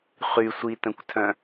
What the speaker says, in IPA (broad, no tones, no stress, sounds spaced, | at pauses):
χ y sʷ i t ə̃ kʷ tʰ œ̃